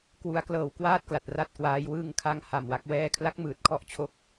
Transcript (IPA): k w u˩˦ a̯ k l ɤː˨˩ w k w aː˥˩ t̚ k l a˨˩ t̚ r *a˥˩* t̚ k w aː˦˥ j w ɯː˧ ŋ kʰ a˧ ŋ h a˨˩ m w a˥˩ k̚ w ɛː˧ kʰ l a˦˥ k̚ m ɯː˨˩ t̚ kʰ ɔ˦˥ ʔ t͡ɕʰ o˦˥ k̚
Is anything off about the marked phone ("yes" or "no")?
no